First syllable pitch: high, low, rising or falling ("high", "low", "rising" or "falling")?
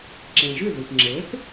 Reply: low